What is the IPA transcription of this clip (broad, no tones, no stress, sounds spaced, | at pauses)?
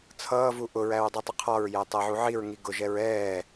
t͡sʰ ʌː v u ʔ ʊ ɹ æ ɹ dˤ u tˤ ʊ qʰ ɒ ɹ j æ tˤ æ ʕ u ʕ i ɹ ŋ i ɡ ʊ ʒ ɛ ɹ ɛː